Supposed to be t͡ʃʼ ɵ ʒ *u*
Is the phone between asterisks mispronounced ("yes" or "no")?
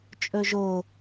yes